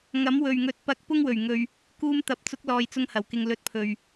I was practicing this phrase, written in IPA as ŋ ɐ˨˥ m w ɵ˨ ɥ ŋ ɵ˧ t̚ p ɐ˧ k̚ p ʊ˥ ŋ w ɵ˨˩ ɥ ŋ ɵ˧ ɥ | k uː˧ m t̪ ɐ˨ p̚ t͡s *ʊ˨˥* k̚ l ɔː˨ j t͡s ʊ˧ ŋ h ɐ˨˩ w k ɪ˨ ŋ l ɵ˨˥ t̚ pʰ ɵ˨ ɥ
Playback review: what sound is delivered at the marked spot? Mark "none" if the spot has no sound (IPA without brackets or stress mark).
ʊ˨˥